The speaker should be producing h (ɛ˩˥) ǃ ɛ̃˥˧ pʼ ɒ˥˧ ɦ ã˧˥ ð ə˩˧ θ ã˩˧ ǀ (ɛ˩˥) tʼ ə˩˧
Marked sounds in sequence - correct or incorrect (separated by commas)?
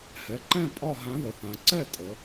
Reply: correct, incorrect